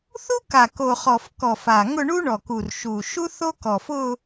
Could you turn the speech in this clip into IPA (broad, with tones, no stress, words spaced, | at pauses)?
θu˥ka˨˩ ko˨˩χɔ˨˩f kɔ˨˩fa˨˩ ŋʊ˥˧ɳu˥ ɳɔ˨˩ku˨˩r ʃu˨˩ʃu˥ θo˥kɔ˨˩fʊ˥˧